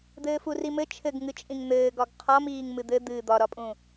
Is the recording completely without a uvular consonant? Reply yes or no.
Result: no